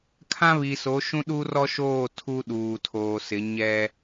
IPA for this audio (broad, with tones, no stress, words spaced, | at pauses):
kʰã˦βi˨so˨˦ʃũ˦ ɗu˦rɔ˦ʃoː˦˨ tʰu˦ɗuː˨tʰoː˨sɪ˨˦ ɲɛ˦